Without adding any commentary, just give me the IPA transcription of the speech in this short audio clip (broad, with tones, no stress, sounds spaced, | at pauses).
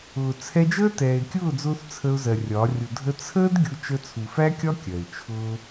ʊː˨ t͡sʰ ɛ˧ d͡ʒ əː˦ t ɛː˨ ɪ̯ kʲ ʊː˦˨ d͡z ʊː˧ θ t͡sʰ ə˧ ʊ̯ z ɜ˨ rʲ ɒ˨˦ rʲ ʊ˨ dʱ ə˧ t͡sʰ əː˦ d ɡʲ ʊ˧ t͡ʃ ə˧ t͡sʰ u˨ f æ˦ kʲ ɒ˦ kʲ ɜ˨ ɪ̯ t͡ʃʰ ʊː˦